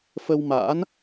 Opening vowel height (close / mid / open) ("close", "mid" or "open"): mid